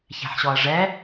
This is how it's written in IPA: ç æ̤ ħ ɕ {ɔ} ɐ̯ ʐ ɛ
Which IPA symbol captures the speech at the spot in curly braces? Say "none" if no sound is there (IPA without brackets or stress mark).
ɔ